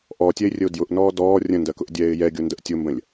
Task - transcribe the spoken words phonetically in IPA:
ʔ ɔː tʲ ɛ ɪ̯ rʲ ə ʊ̯ d j ʊ ʔ n ɔː d ɔː rʲ ə̃ n d ɜ k ʊ ʔ dʲ ɛː ɪ̯ j ɛ ɡʲ ʊ n d ə ʔ tʲ ʊ m b ə̃ lʲ

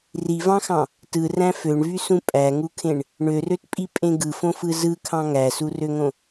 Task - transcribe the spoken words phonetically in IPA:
r i v ɑ̃ x ɑ̃ | t ɯ r æ̃ f ø ɳ v y s ũ pʼ æ ŋ u kʰ ẽ ɳ | ɳ ø r ø t pʼ i pʼ ẽ ɡ ɯ f õ f ɯ z ɯ kʰ ɑ̃ ŋ æ s u r ø ŋ õ

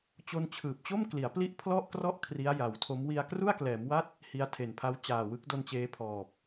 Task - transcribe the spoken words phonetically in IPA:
t͡ɕ o˧ n t͡ɕʰ ɯː˨˩ p̚ t͡ɕ o˥˩ m k l i˩˦ a̯ p l i˦˥ ʔ pʰ l ɔ˥˩ ʔ k r ɔ˥˩ ʔ kʰ r i˦˥ a̯ j a˩˦ w tʰ o˦˥ m w i˧ a̯ k r u˥˩ a̯ k l ɛː˩˦ m w a˥˩ t̚ | h i˧ a̯ tʰ e˨˩ n pʰ a˦˥ w t͡ɕ aː˨˩ w ɯ˦˥ k̚ d o˧ n t͡ɕ eː˦˥ pʰ ɔː˨˩ p̚

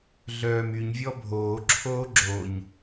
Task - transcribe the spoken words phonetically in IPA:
ɮ œː m y ɲ vʲ ɔ bʱ oː ǁʰ oː ɡ͡ǁ o ɲ

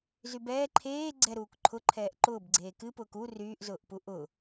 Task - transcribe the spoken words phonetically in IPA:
z y b ɛː ǃʰ eː ɡ͡ǀ ɛ ɾ uː k ǃʰ ʊ ǃʰ ɛː ʔ ǃ ʊː b ɡ͡ǀ eː k ɨ p ʊː k u r yː ʔ z ʊː ʔ p u ʔ ʊ

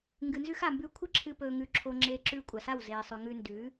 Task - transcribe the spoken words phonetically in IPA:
ŋ ɡ ɨ˨ n z ʉ˧ x a˨ m b ʉː˧ kʷʰ ɨ˦ ǁʰ ɨ˧ p ɵː˧ ŋ ʉ˧ ǁʰ o˧ ŋ͡ǁ eː˧ ǁ ʉː˧ kʷʼ a˨ s a˦˨ w z eː˨ sˤ ʉ˨ ŋ ʉ˧ n d ʉː˨˦

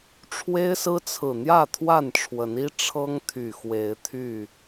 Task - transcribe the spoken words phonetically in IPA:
ʈ͡ʂʰ w e˦ ɪ̯ s ɹ̩˦ t͡sʰ ɹ̩˨˩ n̪ j ä˥˨ t̪ʰ w a˥˨ n ʈ͡ʂʰ w ə˨˦ n i˦ ʈ͡ʂʰ ɤ˦ ŋ t̪ʰ y˨˩ x w e˨˦ ɪ̯ t̪ʰ y˥˨

